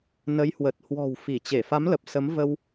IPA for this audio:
n ə˨˦ j h w ə˨˩ t̚ h w ɔ̤˨˩ w f i˧˩ t͡ɕ e˧˩ f a˨˦ m l ə˨˩ p̚ s ə˨˦ m v ə˧ w

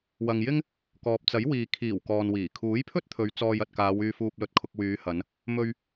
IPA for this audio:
w ɐ˨ ŋ j ɪ˥ ŋ | k ɔː˨ p̚ t͡s ɐ˨˥ j w iː˨ kʰ iː˨˩ w k ɔː˨ n w iː˨˩ kʰ uː˨˥ j pʰ ɵ˥ t̚ t̪ʰ ɵ˨˧ ɥ t͡s ɔː˧ j ɐ˨ t̚ k aː˨˧ w yː˧ f uː˧ p̚ l ɵ˧ t̚ kʰ ʊ˧ k̚ w yː˨˧ h ɐ˨˧ n | m ɵ˧ ɥ

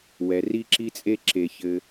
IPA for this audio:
w ɛ˩ r i˥ ǁ i˥ t͡sʼ e˥ ǁ e˩ ç ɘ˩

